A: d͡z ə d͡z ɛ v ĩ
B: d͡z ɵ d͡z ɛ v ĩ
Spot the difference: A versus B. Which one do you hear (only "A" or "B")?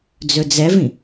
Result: B